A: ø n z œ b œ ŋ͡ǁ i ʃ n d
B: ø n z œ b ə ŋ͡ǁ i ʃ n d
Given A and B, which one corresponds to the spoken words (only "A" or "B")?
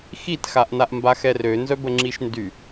B